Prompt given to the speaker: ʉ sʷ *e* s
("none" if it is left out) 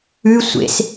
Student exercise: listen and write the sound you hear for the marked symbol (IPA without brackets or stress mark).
ḛ